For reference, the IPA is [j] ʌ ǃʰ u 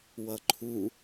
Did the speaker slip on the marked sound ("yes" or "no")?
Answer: yes